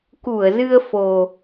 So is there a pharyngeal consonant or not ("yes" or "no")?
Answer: no